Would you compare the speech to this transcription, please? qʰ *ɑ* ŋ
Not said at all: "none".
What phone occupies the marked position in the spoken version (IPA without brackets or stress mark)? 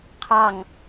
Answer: ɑ